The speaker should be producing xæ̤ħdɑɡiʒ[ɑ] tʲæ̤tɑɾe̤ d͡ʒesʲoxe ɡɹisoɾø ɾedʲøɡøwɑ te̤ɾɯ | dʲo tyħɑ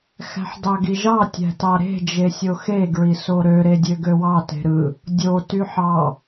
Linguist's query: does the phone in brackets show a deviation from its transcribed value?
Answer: no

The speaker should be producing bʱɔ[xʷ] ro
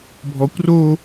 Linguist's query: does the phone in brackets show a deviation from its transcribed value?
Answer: yes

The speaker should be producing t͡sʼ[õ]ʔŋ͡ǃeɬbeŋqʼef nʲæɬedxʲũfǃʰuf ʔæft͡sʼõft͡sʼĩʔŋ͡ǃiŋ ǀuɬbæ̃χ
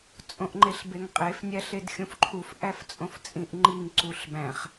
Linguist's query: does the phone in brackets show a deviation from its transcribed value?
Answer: no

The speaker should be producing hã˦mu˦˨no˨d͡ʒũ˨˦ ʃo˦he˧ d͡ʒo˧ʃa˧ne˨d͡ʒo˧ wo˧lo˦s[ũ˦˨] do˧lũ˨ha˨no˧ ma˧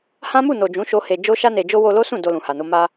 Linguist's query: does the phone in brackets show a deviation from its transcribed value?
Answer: no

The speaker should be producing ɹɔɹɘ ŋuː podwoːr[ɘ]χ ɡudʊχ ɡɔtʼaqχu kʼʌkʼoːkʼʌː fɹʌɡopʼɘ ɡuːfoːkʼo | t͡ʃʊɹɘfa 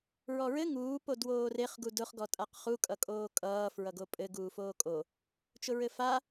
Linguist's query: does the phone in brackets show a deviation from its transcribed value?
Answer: yes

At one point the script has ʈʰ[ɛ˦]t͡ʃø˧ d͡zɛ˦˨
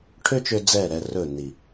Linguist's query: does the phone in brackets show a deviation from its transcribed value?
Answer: yes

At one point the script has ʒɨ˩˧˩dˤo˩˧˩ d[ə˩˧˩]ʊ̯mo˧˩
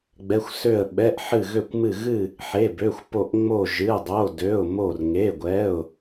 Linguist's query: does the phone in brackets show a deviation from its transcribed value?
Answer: yes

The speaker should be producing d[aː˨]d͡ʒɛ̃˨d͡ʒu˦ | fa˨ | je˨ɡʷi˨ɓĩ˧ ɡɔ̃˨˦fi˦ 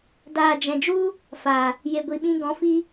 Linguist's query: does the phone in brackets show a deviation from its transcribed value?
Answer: no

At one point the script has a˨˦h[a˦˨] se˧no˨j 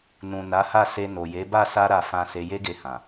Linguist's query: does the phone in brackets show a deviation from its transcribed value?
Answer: no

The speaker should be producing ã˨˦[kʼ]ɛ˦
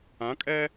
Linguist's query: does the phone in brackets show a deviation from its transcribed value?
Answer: no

